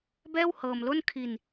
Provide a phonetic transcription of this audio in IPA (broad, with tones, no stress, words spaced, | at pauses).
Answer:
bɛː˥˩whɤː˧mlo˥˩n kʰi˧n